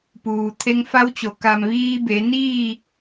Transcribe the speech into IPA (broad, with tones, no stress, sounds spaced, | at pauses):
p uː˩ t̪ʰ e˧ ŋ f a˧˥ w t͡ɕ o˩˧ k a˩ m ʋ iː˧ b e˩˧ n iː˥˨